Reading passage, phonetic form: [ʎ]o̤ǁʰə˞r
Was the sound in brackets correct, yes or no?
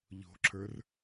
yes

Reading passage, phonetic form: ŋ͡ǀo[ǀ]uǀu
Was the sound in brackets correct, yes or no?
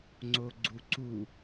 no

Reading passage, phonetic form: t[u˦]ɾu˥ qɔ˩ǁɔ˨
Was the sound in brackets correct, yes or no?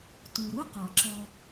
no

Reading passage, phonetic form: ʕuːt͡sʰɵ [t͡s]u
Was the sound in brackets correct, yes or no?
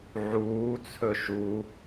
no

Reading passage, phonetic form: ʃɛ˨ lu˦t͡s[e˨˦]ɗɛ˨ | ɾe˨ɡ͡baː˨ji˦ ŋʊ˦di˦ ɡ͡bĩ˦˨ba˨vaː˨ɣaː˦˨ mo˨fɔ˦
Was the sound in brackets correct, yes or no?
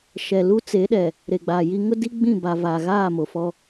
yes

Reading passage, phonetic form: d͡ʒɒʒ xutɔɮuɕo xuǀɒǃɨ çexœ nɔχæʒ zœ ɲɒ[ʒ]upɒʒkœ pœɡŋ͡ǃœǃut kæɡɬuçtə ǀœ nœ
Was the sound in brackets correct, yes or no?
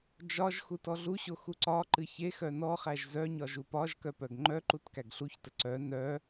yes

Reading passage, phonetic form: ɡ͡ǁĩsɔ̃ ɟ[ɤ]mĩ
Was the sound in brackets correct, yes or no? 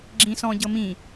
yes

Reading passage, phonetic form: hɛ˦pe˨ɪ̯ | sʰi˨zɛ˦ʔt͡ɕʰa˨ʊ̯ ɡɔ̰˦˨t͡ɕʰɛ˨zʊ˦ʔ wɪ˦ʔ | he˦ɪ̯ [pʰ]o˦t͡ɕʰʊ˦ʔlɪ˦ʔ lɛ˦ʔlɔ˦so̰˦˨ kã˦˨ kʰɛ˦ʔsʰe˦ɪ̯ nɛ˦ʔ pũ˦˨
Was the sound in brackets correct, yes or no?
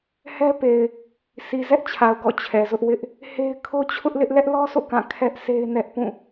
no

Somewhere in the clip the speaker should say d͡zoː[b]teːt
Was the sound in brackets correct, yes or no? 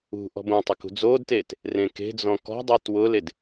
no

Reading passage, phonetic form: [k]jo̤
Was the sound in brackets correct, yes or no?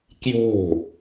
yes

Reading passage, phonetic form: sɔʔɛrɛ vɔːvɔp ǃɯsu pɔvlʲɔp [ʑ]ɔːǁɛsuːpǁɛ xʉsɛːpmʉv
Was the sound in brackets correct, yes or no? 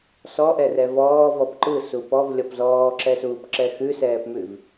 no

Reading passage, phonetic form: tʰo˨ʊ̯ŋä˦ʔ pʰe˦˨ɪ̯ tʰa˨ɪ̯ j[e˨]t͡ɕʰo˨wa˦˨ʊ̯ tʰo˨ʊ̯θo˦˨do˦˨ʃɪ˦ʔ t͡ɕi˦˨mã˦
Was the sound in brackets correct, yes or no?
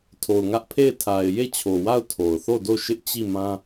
no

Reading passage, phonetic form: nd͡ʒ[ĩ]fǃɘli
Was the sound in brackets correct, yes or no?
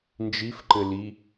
no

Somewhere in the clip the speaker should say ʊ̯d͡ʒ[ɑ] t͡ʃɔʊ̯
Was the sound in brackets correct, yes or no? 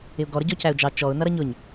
yes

